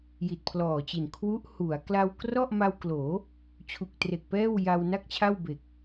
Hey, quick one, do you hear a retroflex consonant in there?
no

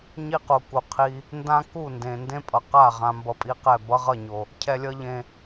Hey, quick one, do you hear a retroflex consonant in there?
no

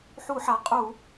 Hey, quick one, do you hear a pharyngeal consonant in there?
yes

